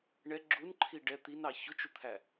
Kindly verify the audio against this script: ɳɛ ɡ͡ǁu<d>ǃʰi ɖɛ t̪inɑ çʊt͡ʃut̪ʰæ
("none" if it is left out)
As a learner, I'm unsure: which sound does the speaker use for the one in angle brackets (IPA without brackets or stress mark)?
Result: n